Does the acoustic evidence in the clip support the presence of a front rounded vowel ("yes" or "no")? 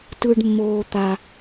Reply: no